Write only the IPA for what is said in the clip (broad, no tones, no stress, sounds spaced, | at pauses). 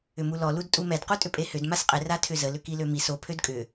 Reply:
ʏ m u l ɔ l u d tʼ u m ɛ d q u tʼ ʏ pʼ e h ʏ d m a s qʼ ɪ r a tʰ ʏ z ə l ʏ k i l ø m i s o pʰ ø d kʼ ʏ